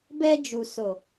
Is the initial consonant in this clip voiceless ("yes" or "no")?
no